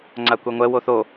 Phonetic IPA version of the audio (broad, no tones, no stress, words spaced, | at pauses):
ŋ͡ǀakʷɛŋʷɛ woθo